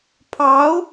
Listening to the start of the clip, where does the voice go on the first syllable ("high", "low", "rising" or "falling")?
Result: rising